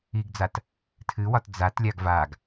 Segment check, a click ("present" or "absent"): absent